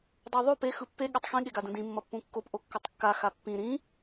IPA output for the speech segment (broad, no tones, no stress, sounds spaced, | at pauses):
dˤ o ðˤ o p e x ɯ pː e ɠ ɛ tˤ x ĩ ɠ e ɡ a d ũ d ĩ mː ʌ pː ũ kː o p ʔ o kː ʌ tˤ kː a x a pː ĩ ɾ ĩ